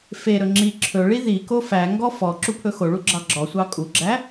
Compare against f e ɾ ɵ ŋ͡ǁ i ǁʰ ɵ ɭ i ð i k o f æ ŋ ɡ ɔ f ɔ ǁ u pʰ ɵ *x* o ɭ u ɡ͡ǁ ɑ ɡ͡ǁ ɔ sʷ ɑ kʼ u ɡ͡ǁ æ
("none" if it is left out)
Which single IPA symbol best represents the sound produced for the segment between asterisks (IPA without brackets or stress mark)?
x